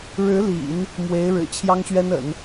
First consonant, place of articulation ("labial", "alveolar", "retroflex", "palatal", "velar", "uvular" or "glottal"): retroflex